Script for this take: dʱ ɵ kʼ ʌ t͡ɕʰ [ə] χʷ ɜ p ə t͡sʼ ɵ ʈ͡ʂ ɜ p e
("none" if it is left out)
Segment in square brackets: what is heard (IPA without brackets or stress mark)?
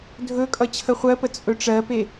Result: ə